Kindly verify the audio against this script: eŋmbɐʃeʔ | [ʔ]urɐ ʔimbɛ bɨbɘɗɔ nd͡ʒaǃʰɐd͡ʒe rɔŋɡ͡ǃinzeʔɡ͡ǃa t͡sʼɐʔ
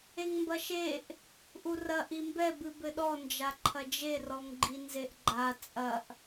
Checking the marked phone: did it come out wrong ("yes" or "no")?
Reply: no